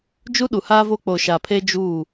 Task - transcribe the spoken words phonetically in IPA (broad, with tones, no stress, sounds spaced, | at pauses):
d͡ʒ u˦ ɗ u˨ h aː˦ v oː˦ k͡p o˨ ʃ a˨ pʰ e˦ d͡ʒ uː˦˨